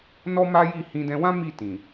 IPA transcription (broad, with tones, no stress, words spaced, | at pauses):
nɔ˦ma˦ji˦˨ hĩ˧dɛ̃˧wã˦ mi˦˨tĩ˨